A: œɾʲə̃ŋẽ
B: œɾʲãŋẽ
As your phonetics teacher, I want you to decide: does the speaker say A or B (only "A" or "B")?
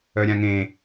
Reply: B